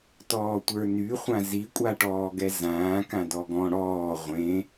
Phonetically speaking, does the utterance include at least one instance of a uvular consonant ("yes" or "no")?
yes